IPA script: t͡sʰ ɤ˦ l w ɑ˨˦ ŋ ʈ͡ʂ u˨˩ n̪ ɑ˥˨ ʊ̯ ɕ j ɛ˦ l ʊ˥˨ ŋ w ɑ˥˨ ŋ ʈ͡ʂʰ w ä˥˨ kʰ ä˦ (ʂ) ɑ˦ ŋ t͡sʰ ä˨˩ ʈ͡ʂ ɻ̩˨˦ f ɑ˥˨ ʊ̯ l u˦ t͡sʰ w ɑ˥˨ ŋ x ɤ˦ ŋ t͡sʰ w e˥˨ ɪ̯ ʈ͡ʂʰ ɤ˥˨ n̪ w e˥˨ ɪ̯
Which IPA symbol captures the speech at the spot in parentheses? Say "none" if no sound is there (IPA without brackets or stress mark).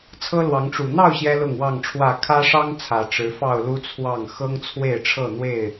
ʂ